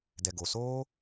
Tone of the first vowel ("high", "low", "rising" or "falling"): low